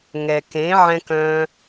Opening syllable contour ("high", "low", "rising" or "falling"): low